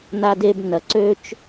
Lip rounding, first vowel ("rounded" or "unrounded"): unrounded